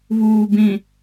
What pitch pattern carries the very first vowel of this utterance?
low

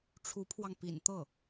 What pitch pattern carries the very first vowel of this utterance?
rising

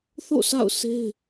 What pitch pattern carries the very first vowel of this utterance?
falling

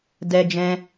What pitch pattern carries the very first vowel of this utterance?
high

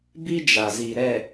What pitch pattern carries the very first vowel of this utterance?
high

